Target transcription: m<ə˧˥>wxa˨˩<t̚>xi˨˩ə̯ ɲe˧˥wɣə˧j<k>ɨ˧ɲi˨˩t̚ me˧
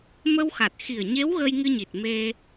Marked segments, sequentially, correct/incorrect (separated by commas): incorrect, correct, incorrect